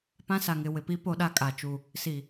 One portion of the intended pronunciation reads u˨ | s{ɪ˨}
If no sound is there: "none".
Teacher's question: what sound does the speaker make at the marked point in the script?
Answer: i˨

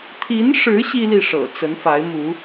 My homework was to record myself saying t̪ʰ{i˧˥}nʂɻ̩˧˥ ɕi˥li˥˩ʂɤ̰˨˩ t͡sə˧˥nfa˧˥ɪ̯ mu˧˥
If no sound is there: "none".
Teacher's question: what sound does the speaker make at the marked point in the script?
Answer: i˧˥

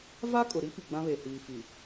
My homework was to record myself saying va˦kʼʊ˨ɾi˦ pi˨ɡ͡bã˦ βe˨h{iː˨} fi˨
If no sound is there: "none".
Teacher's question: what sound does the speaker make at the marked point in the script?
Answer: iː˨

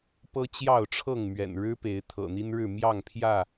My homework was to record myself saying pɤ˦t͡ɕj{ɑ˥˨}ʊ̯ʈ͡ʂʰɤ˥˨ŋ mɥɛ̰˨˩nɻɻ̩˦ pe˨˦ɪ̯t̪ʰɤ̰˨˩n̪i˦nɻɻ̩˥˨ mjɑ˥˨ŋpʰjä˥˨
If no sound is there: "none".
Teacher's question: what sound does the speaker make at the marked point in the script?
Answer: ɑ˥˨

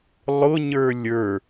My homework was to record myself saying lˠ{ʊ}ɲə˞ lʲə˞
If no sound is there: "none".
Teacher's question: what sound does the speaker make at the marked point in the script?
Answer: ʊ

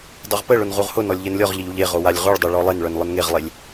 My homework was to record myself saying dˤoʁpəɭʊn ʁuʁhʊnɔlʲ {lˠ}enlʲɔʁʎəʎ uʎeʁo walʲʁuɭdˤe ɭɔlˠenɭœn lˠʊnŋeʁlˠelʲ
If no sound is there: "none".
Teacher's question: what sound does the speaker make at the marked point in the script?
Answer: ʎ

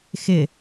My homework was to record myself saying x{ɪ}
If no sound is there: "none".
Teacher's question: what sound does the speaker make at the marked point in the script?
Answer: ɪ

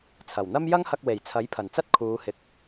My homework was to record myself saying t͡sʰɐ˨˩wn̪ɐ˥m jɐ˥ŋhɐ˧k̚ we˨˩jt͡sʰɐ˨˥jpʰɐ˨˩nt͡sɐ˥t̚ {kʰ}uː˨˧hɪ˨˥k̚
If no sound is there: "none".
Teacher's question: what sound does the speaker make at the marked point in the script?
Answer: kʰ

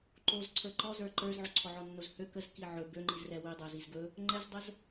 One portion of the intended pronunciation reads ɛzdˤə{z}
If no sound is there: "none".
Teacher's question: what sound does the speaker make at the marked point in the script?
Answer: z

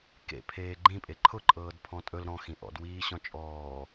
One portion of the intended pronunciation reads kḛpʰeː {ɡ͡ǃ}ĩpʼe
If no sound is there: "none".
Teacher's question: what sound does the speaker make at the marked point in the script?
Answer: ɡ͡ǃ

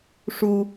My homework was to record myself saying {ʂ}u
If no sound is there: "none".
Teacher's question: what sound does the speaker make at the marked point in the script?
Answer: ʂ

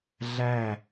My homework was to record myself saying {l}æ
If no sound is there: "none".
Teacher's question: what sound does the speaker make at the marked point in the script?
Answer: ɮ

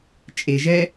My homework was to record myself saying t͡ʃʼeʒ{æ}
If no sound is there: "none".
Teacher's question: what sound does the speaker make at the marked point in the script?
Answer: ɛ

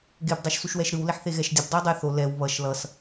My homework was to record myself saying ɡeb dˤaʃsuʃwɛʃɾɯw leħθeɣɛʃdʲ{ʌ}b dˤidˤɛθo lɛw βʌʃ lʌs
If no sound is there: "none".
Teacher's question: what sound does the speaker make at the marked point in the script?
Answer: ʌ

